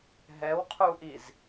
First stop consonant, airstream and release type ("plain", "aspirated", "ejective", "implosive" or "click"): aspirated